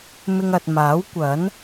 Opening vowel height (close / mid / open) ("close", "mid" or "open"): close